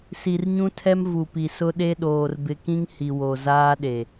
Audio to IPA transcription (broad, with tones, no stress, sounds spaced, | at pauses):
s i˨ r ɲ ũ˦ tʰ ɛ˦ m v u˨ p i˨ s ʊ˦ ɗ e˦ ɗ oː˨ r b ɪ˨ k ĩ˦ ŋ h i˨ w o˨ z aː˦ ɗ e˨